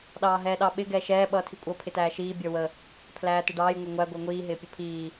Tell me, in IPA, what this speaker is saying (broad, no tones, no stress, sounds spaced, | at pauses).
ɗ ɑː ɦ ɛː ɗ ɑ ɓ ɪ ɡ ɛː ʃ ɛː ɓ ʌː tʰ i kʷʼ ʌ pʰ ɪ t æː ʃ iː bʲ ə˞ w ə | pʰ l æː t ɪ ɖ ɑː j ŋʷ ɛ ŋʷ æ ɡʷ ɛ ŋʷ iː ɦ ɪː pʲ ə pʰ iː